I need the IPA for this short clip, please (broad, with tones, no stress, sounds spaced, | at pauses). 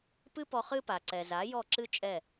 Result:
p ɨ˥ p ɔ˧ χ ɨ˥ p a˩ ǀ ɛ˩ z a˩˥ j ɔ˥˩ ǁ ɨ˥ t͡ʃʼ ɛ˥˩